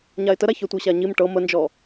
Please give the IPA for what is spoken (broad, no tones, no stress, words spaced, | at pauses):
ɲaɪ̯təɾaçœ tʷɤɕaɲim ʈɤ mənd͡ʒɔ